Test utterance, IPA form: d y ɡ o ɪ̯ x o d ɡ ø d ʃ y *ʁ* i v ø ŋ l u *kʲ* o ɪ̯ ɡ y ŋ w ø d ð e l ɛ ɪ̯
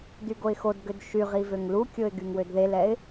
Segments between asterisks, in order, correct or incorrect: correct, correct

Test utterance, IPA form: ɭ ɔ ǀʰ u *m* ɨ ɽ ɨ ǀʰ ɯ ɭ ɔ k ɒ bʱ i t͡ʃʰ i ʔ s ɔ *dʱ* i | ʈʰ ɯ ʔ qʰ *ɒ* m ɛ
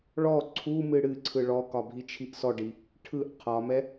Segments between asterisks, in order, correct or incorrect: correct, incorrect: ɖ, correct

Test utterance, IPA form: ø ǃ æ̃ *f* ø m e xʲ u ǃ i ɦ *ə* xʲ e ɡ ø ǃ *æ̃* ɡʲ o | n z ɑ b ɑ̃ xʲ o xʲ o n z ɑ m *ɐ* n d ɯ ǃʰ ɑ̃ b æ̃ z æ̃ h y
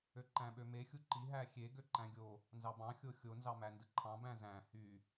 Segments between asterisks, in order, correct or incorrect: incorrect: ɓ, incorrect: æ, correct, incorrect: æ

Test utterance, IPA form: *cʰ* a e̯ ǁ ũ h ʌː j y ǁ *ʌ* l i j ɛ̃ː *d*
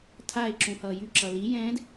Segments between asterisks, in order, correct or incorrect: incorrect: tʰ, correct, correct

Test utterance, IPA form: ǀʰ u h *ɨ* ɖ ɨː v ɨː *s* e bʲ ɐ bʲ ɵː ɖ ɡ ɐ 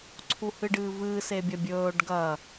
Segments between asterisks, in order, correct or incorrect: correct, correct

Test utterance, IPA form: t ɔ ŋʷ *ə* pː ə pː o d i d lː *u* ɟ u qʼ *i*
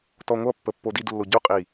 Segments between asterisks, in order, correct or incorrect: incorrect: ʌ, incorrect: o, correct

